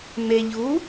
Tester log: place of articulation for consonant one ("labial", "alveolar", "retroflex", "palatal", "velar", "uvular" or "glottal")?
labial